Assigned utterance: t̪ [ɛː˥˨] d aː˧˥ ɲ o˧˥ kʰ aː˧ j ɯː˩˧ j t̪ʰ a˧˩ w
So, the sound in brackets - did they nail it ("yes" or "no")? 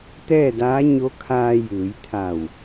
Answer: yes